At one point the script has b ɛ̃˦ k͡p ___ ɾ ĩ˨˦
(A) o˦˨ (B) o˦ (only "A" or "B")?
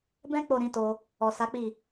A